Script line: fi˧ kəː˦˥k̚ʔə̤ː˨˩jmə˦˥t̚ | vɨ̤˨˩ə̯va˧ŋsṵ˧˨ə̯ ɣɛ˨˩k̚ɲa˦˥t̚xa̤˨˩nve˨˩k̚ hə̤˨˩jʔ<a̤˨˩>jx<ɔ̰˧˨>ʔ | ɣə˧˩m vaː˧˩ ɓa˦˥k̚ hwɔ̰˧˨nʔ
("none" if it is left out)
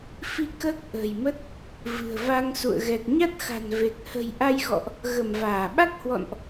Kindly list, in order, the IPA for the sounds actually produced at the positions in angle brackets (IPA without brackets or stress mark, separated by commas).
a˧, ɔ̰˧˨